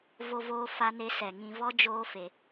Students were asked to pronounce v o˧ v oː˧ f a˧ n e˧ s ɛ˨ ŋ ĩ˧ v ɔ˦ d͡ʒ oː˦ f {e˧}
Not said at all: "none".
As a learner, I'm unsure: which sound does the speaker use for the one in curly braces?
e˧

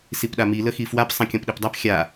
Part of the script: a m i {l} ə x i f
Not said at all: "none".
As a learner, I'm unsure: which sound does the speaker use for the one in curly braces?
l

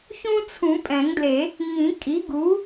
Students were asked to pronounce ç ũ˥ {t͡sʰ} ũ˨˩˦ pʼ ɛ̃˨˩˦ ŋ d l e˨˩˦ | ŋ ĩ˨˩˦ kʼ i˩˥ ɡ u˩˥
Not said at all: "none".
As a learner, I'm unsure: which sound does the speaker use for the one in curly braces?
t͡sʰ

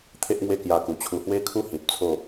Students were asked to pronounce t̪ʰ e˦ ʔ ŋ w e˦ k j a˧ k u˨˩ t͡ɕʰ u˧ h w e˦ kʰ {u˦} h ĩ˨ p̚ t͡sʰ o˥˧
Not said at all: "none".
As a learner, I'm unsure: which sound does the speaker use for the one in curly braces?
u˦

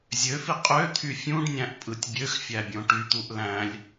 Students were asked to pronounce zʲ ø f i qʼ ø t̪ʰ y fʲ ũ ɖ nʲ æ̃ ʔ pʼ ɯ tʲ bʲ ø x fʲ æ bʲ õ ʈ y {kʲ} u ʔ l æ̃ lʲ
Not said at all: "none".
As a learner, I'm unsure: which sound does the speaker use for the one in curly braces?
t̪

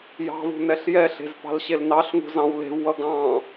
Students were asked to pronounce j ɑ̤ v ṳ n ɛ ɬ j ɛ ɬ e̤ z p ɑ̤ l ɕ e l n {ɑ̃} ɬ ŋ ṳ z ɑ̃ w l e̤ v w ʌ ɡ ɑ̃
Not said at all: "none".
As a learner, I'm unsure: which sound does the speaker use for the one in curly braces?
ɑ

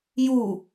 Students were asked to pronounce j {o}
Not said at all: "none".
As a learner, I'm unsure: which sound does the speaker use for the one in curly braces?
u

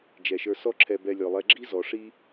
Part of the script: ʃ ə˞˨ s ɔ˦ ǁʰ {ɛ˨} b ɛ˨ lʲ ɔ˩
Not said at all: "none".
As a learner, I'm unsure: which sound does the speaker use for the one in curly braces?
ɛ˨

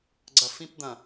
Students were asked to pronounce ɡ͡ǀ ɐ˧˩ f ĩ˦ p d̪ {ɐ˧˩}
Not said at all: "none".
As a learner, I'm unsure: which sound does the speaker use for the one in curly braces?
ɐ̃˧˩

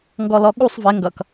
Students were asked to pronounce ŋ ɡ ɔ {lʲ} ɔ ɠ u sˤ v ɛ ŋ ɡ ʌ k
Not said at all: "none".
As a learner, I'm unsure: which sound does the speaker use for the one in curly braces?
l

